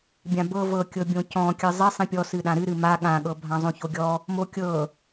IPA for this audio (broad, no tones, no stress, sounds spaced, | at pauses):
bʲ ã b ɤ v ɤ kʲ ɤ bʲ õ c ɔ̃ kʲ ɨ zˤ i sˤ ĩ pʲ ɔ s ɨ ɗ ã ɾ ɨ ɾ ɨ m a ɠ ã ɠ ɤ bʱ ã zˤ õ ç o ɡʲ ɔ | m o kʲ ɤ